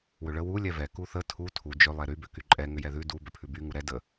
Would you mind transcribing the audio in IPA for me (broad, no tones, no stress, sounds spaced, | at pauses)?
w ʏ ɭ ə w u lʲ ɛ v ɛ k u θ ə tʰ u tʰ u d͡ʒ ʏ lˠ ɛ ɾ y b ʏ k y ǃʼ ɛ ŋ ʏ j ɛ ð ʉ d u b ʏ pʰ ʉ b y ŋ u ɾ ɛ d ə